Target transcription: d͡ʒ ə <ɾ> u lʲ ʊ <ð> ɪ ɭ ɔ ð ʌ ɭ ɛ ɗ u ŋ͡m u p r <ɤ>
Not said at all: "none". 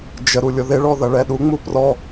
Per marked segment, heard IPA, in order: ɾ, ð, ɔ

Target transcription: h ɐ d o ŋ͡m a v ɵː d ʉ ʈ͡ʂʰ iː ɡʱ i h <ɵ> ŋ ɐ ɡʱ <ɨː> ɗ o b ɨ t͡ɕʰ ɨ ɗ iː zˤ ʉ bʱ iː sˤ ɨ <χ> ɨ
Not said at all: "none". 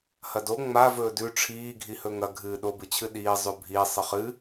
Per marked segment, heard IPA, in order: ɵ, ɨː, χ

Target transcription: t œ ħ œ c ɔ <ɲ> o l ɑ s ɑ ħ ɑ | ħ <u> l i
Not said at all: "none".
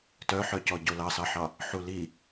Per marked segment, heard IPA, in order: ɟ, u

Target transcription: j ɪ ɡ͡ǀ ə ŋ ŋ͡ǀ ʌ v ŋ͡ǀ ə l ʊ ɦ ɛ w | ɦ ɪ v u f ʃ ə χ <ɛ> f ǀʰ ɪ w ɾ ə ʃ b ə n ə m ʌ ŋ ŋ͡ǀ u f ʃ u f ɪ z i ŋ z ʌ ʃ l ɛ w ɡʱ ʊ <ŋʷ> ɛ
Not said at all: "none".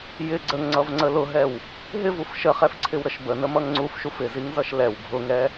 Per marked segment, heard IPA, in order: ɛ, ŋ

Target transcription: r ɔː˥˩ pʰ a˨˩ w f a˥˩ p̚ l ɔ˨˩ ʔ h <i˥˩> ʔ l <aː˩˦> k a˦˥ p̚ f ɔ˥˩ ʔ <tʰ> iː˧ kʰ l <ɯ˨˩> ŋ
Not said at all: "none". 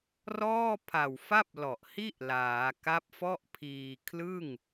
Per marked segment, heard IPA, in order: i˥˩, aː˩˦, pʰ, ɯ˥˩

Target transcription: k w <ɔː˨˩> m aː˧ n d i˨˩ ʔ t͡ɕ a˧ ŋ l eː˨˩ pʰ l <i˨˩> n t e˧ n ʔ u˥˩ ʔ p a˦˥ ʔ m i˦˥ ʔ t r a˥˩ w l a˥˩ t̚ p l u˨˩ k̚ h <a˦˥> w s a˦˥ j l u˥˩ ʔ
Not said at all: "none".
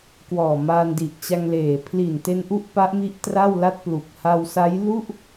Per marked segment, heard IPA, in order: ɔː˨˩, i˨˩, a˧

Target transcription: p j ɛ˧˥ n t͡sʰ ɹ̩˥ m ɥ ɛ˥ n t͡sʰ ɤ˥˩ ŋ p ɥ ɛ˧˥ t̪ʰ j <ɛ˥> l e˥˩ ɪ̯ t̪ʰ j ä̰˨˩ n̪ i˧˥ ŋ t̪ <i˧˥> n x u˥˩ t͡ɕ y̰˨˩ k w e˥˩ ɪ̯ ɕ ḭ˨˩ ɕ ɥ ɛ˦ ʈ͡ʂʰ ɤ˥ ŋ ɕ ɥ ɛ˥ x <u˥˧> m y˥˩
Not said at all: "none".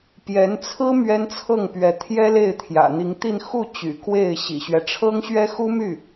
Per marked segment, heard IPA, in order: ɛ˥, i˥˧, u˥

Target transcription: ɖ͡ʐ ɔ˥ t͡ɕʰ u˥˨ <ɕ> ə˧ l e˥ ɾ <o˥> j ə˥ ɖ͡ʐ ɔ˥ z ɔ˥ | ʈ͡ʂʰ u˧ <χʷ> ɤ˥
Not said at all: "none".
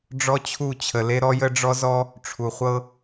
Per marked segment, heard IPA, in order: t͡ɕʰ, ɔ˥, χʷ

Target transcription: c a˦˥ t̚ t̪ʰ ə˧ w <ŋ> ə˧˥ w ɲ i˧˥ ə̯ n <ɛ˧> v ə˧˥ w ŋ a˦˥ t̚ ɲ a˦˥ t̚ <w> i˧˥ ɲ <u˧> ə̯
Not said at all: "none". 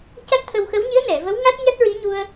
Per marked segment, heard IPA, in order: x, ɛ˨˩˨, ɹ, u˧

